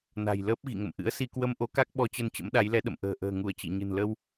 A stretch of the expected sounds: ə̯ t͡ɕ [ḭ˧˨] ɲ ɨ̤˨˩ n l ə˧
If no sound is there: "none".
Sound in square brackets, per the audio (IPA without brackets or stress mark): ḭ˧˨